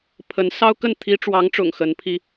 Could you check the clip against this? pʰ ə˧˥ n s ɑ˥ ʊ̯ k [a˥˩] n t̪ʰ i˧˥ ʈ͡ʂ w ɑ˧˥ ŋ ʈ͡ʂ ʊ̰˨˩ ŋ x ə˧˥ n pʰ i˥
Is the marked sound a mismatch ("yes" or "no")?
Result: yes